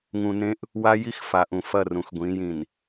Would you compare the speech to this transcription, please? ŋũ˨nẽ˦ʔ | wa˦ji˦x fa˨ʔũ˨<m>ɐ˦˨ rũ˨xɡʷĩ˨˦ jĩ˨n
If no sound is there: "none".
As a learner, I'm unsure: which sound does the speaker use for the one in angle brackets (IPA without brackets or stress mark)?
f